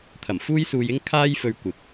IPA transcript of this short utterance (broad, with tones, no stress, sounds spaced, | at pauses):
t̪ʰ ɐ˨˩ m f uː˥ j s uː˧ j ɪ˥ ŋ kʰ aː˥ j f ɵ˧ ɥ kʷ ɪ˨ k̚